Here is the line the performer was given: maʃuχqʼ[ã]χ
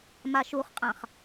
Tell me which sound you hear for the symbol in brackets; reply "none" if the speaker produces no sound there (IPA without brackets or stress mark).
ã